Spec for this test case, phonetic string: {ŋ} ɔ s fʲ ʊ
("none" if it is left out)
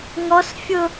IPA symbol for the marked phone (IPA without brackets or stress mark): ŋ